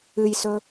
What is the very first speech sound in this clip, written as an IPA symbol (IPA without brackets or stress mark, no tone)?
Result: ɨ